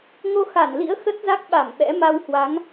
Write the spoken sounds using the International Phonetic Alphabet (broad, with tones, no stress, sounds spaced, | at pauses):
ŋ o˧ x a˧˩ n l ḭ˧˥ ə̯ x ə˦˥ t̚ z a˦˥ k̚ ɓ a˧˩ m ɓ ɛ̰˧˥ m a˧ w h w a˨˦ ŋ